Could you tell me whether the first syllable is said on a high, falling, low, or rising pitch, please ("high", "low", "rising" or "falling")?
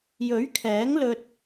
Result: rising